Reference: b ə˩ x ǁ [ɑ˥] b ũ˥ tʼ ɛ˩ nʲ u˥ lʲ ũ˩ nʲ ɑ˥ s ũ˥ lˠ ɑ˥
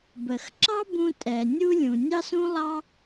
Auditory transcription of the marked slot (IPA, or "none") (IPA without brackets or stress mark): ɑ˥